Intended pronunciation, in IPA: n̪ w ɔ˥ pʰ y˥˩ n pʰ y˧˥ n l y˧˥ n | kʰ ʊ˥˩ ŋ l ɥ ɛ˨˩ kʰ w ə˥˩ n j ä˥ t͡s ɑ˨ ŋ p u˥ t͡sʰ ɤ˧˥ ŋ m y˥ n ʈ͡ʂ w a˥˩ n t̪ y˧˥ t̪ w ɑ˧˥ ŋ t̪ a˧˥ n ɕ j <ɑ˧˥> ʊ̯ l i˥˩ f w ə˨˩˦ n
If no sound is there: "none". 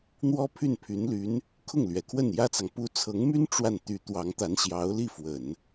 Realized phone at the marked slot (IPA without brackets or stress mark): ɑ˧˥